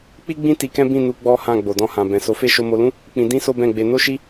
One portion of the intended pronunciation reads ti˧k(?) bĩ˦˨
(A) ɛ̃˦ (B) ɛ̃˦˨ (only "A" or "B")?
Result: A